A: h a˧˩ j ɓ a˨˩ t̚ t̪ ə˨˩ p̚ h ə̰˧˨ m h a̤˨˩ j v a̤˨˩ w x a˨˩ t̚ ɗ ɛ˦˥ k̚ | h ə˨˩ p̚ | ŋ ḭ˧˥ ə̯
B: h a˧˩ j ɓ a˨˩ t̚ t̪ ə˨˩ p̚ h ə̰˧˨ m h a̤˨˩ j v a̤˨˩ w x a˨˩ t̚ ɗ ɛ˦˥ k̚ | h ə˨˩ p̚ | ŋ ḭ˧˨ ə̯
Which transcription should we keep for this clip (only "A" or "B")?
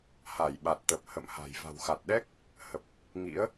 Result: A